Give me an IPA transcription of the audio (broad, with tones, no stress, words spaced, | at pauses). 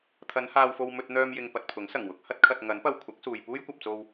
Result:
t̪ʰɐ˨˧nhaː˧wfo˧w mɵ˧t̚n̪œː˧m jɪ˧ŋpɐ˧t̚pʰʊ˨˥ŋ sɐ˨˩ŋwʊ˧k̚hɐ˥t̚kʰɐ˧t̚ ŋɐ˨˥npɐ˧w kʷʰɐ˨˥k̚suː˨j puː˥jkʷɐ˨p̚t͡so˧w